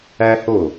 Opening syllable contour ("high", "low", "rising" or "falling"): high